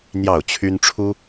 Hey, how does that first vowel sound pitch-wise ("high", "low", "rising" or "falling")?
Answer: falling